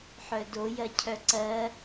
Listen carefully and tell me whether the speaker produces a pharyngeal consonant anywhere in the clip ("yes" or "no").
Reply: yes